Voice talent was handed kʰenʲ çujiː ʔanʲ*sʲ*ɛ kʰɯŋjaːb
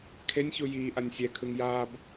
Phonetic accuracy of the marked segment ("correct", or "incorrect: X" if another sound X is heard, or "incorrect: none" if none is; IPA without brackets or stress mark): correct